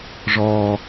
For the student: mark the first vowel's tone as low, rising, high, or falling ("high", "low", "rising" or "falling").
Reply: low